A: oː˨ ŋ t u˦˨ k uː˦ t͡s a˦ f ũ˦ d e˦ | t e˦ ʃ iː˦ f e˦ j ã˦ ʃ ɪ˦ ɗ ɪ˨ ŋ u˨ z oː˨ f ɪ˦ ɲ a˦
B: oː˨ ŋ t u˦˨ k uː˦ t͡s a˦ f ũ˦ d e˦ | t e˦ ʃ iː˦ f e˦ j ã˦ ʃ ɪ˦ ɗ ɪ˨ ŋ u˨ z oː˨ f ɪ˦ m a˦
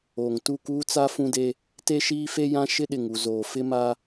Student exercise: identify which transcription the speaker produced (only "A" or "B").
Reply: B